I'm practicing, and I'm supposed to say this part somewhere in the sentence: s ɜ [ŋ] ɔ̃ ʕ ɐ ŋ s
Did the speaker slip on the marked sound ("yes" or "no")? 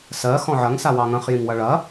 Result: yes